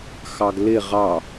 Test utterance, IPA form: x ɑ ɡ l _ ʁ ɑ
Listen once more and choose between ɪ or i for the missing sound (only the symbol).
ɪ